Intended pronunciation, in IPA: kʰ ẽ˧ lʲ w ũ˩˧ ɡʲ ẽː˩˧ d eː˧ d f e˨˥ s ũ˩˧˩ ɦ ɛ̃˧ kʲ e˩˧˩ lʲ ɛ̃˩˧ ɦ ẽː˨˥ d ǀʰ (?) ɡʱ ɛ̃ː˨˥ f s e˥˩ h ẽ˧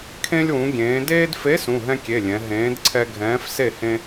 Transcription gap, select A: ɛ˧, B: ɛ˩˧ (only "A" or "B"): A